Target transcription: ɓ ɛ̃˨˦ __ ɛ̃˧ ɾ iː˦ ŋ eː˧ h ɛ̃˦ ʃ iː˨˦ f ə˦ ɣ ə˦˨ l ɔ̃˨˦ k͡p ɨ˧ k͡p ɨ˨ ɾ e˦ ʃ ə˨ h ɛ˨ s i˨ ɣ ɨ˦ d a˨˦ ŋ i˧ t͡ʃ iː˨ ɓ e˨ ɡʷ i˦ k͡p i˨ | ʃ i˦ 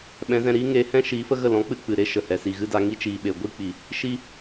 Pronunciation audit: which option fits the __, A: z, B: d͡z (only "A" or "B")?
A